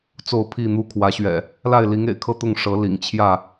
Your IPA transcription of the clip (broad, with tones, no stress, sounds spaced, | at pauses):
t͡s o˥˨ ʊ̯ pʰ i˥˨ n̪ u˥˨ kʰ w ä˨˦ ɕ ɥ ɛ̰˨˩ | l a˥˨ ɪ̯ l i˨˦ ŋ ḛ˨˩ ɪ̯ kʰ ɤ˥˨ t̪ ʊ˥˨ ŋ ʂ ɤ˨˦ l ḭ˨˩ ŋ t͡ɕʰ j ä˥˨